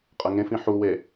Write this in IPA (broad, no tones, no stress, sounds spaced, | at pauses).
qʼ ɐ ŋ ẽ f ĩ ħ u w e